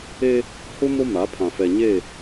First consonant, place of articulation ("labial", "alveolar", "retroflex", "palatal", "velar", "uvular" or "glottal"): glottal